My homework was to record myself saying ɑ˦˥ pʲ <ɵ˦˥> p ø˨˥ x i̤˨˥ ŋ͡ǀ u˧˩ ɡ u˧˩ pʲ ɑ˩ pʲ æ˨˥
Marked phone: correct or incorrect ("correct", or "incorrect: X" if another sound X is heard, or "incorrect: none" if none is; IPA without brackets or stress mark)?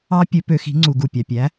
incorrect: ɵ˨˥